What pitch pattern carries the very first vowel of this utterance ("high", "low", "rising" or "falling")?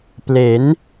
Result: rising